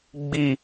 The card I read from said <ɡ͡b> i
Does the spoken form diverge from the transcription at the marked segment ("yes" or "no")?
no